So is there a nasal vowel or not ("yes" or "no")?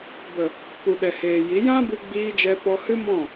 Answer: yes